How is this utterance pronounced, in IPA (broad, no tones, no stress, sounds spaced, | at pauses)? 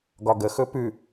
ɡ ɒ ɡ ə x ɵ p ʉ